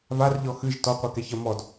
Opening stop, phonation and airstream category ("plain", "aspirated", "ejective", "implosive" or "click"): plain